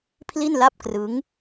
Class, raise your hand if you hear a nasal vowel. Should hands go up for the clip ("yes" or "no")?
no